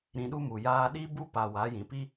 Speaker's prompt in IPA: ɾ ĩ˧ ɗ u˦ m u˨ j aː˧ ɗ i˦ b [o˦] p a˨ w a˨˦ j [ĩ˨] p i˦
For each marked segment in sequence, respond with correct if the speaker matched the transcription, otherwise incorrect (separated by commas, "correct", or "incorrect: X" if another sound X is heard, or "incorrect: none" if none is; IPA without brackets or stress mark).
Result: incorrect: u˦, correct